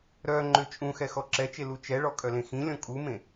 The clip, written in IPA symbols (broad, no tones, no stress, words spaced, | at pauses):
ɾœ ŋ͡ǃøt͡ʃʼũxɛ xɔǁɛt͡ʃe lut͡ʃɛɭɔ kʼœlẽxĩlʲɔ̃ kʼumẽ